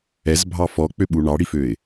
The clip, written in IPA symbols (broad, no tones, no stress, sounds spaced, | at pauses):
ɛ z bʱ ɑ f ɔ k͡p ø ɓ u ɳ ɑ ɽ i f ø ɪ̯